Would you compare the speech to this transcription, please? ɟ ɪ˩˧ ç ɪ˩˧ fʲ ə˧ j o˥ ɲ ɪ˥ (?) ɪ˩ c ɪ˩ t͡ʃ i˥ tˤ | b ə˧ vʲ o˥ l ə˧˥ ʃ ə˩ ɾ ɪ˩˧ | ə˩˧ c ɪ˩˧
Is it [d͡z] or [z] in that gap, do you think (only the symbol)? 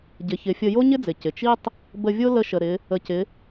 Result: d͡z